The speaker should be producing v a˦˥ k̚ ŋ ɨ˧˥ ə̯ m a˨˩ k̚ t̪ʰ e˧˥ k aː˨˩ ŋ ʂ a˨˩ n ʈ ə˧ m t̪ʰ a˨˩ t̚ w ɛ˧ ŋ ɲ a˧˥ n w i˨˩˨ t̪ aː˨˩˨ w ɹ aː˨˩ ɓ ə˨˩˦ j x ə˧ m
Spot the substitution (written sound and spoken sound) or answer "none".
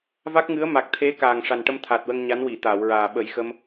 ɛ˧ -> ə˧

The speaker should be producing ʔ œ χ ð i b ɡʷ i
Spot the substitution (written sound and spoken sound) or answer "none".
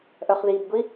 none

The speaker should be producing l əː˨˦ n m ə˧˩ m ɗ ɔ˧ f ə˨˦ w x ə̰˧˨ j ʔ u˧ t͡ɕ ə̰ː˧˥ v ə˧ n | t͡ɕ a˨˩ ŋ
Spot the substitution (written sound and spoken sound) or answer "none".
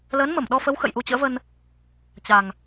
none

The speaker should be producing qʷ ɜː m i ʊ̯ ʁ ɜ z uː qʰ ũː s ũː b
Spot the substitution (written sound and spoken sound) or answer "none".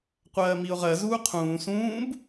none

